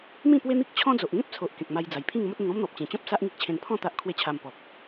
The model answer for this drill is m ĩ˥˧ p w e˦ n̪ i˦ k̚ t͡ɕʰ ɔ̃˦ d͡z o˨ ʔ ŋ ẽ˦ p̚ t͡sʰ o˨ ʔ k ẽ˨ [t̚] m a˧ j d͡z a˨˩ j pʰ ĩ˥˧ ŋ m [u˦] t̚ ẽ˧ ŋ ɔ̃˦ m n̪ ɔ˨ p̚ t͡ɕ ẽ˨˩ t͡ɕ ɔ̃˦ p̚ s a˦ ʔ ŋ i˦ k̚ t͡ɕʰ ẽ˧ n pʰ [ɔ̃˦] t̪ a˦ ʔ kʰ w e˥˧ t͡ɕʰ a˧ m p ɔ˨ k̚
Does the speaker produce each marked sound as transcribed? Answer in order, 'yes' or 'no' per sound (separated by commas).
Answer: no, no, no